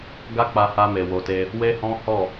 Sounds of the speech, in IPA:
ɡ a˦ k͡p a˧ h a˧ m e˨ w o˨ t e˧ | w e˦ h ɔ̃˦ h ɔ˦˨

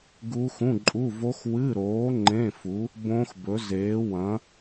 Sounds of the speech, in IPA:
ɡ u˦˥ x ũ˧˥˧ ǃʼ u˧˥˧ v o˦˥ x w ɨ˧˥˧ ɾ oː˨˥ ŋ͡ǃ ẽ˧˥˧ f u˨˥ | b õ˦˥ x b ɵ˨˥ z eː˨˥ w ɐ̃˨˥

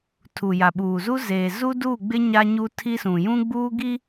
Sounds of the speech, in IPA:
tʰ u˨ j a˨ ɓ uː˨ z u˦ z eː˨ z u˦ d uː˦˨ ɡ͡b ɪ˦ ɲ a˦ ɲ u˦ tʰ i˦ s ũ˨ j ũ˦ ɡ͡b uː˦ ɡ i˦

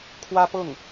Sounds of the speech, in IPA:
kʰ w ä˥ p ɤ˥˩ ŋ

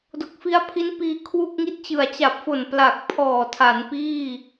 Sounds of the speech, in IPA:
d o˨˩ k̚ f i˦˥ a̯ pʰ i˦˥ n p iː˧ kʰ w u˥˩ k̚ ŋ i˥˩ t̚ t͡ɕ ɯ˨˩ a̯ t͡ɕ a˨˩ p̚ f o˨˩ n p l a˨˩ k̚ pʰ ɔː˨˩ tʰ a˩˦ n p iː˥˩

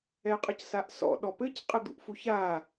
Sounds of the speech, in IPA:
ɛ qʼ ə c s a ʔ s ɔ̰ ɗ ɔ p ɘ c qʼ ɘ d̪ ṵ ʔ f u ç a

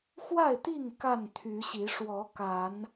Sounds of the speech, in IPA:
x w a˥˨ ɪ̯ t̪ i˥˨ ŋ k a˥˨ n t̪ʰ y˨˦ ɕ i˨˦ ʂ w ɔ˨˦ k a˨˦ n

